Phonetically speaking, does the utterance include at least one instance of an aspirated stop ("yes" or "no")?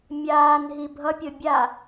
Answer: no